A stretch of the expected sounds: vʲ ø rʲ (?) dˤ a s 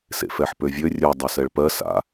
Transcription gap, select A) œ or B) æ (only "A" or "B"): A